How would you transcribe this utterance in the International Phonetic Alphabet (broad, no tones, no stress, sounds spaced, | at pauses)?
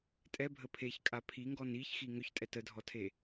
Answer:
tʼ ɛ bʱ ə pʰ e ç kʼ a pʰ i ŋ ɡ ɔ n i ç x i ŋ ʏ ç tʼ ɛ t ə dʱ ɔ tʰ e